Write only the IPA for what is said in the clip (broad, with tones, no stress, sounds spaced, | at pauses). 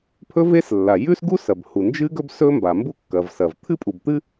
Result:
pʰ ɵ˥ v e˥ s lː a˩ j ʉ˥ s ɡ u˥ s ɐ˩ b h u˩ n d͡ʒ ɨ˥ ɡ ɵ˥ b s ɵ˥ m b a˩ m b u˥ kː ɐ˩ v s ɐ˩ v t̪ʰ ɨ˥ pʼ u˩ b t̪ ɨ˥